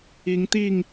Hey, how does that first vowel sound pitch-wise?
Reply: rising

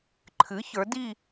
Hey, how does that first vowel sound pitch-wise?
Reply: rising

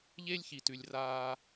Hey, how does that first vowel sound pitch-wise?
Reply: high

